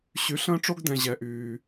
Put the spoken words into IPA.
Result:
ɕ y˨ ɬ ə̃ː˦ ʈ͡ʂ o˦ ɡ d ɛ̃˨ ʑ ɛ˨ ʔ yː˨

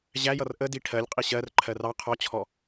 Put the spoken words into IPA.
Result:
ʑ æ j ʌ r ʔ ə d i ʈʰ ɜ lʲ qʼ i ɕ ɜ r ǃʰ ɜ r ɑ qʰ ɔ t͡ɕʰ ɔ

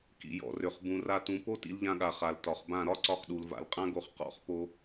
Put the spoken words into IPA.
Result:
k ḭ˨ j ɔ̰˨ r ø˨ χ b ũ˨ r a˧ t ũ˨˦ p o˦ t ḭ˧ l ʎ ã˧ ɠ a˨ χ a˨ l t ɒ˨ χ b ã˦˨ ɾ ɒ˦ ǀ ɒ˧ χ ɗ u˨ l v a̰˨ l qʼ ã˦ ɡ o˧ χ q ɔ̰˦˨ χ p o˧

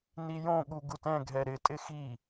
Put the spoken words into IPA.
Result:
n i j õ ɠ u ɡ u t ɛ̃ ɡʱ ɛ ɾ ɪ tʼ ɪ x i

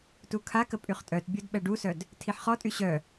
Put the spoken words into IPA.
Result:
t u kʰ a k ə pʼ y χ tʼ œ t bʲ o d ɓ ɛ ɖ u s œ d | tʰ i ħ χ ɔ tʼ y ɕ œ

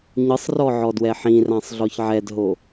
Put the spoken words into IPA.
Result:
ɲ ɯ sˤ r ɔ ʕ ɔ d w ɛ ħ ĩ r ã sˤ ɮ ɔ ç ʕ ɛ d ɦ o

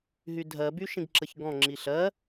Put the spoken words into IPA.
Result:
ɦ y dʱ ɜ b y ʃ ĩ ɡ ǁ ə ç ɡ ɔ̃ ŋ͡ǁ i ɬ ɜ

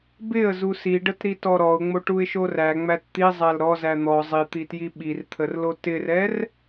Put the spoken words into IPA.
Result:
b ɪ ə̯ z u s i ɖ ə t ɾ i t ɔ ɾ ɔ ʊ̯ ŋ͡m o ʈ u ɪ̯ ʃ o r æ ŋ͡m æ t t̪ i zˤ æ l ɾ ɔ z æ n̪ ɔ zˤ i t̪ i t j i ɓ i r t̪ʰ ə r l o t ɪ r ɛ r

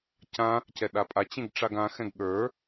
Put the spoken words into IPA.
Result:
c ã | c ɛ ɗ a pʼ a t͡ɕ ẽ ɡ ʈ͡ʂ a ɡ ã x ɛ̃ ɡ ɠ ə˞

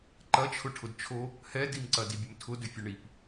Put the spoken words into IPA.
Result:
ǃ ɐ t͡ʃʰ ʊ ʈʰ ʊ d t͡ʃʰ o | h ɛ d i m ǀ ɐ d i bʲ ʊ m tʰ ʊ d ʏ fʲ o ɳ i p

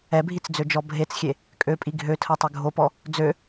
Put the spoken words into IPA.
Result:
ɛ bʱ i t͡s d͡z ø d͡ʒ ɔ bʱ e t͡s xʲ e | kʼ ø pʼ i ɡʱ ø tʰ ɜ tˤ ø ɡʱ o p ɔ | d͡z ø

